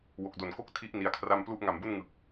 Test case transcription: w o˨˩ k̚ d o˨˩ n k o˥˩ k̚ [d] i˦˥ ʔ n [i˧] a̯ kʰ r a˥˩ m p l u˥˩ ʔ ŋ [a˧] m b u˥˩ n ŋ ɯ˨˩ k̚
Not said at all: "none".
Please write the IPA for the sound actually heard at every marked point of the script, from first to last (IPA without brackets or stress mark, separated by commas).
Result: tʰ, i˧, a˨˩